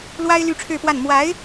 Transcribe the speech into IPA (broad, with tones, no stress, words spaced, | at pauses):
lwa˥ɪ̯ ly˥ʈ͡ʂʰɻ̩˥˧pwa˥˩n mwa˧˥ɪ̯